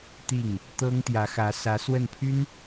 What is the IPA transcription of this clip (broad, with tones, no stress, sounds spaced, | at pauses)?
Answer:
t̪ i˥˩ ŋ | t̪ ɤ˥ ŋ t̪ j ä˧˥ x ä˧˥ s ä˧˥ s w ə˥˩ n pʰ y˥ n